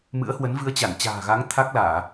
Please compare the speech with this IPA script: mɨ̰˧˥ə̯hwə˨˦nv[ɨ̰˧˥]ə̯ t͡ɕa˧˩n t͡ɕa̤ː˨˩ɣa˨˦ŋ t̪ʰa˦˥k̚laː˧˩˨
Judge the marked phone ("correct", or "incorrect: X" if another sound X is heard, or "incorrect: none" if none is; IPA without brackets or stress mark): incorrect: ɨ˧